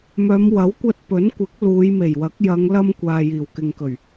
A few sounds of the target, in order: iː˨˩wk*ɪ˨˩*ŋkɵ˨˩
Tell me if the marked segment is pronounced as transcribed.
no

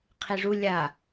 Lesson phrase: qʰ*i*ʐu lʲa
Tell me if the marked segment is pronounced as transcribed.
yes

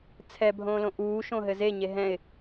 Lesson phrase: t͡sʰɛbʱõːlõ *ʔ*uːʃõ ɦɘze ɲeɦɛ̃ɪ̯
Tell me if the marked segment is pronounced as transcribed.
yes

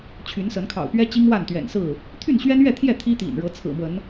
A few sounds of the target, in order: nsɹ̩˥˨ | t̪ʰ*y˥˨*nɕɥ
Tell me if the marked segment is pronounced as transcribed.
yes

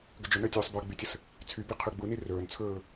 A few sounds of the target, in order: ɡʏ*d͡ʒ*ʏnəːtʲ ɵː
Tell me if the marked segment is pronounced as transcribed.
yes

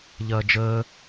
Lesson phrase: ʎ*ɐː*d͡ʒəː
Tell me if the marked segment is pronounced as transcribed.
yes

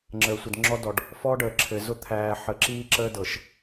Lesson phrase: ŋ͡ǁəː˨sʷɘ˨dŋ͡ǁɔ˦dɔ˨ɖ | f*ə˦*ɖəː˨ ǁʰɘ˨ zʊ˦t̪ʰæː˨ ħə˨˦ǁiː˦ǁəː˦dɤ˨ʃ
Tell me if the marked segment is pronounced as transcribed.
no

